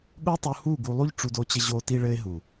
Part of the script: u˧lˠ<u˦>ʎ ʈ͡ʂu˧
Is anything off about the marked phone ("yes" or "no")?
no